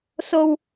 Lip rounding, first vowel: rounded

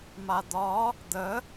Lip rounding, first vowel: unrounded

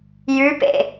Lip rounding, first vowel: rounded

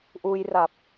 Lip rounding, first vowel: rounded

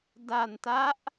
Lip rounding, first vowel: unrounded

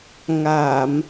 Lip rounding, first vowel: unrounded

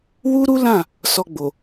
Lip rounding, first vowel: rounded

